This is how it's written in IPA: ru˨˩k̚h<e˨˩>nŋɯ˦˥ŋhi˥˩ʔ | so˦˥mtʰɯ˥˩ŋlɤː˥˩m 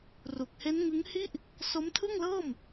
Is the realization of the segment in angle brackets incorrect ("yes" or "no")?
yes